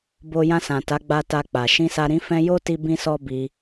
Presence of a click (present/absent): absent